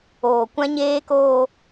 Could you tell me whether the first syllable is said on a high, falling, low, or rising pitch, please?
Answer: low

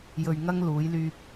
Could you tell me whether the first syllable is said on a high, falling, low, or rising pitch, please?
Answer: low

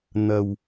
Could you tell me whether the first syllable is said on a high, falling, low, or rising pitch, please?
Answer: low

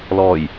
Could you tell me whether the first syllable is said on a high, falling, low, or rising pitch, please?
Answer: low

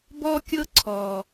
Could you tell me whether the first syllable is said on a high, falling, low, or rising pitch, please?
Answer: high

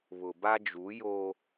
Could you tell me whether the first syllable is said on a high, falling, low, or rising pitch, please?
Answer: low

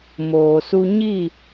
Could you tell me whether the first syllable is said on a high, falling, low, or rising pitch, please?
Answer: low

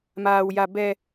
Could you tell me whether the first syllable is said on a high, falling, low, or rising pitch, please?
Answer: low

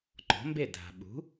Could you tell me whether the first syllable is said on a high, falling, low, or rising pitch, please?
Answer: rising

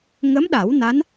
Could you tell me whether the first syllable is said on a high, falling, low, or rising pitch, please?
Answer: rising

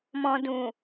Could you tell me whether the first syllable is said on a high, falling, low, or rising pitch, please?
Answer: low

